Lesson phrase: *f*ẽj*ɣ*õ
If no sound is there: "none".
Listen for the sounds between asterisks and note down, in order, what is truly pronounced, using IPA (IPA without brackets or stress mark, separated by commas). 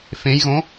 f, ɣ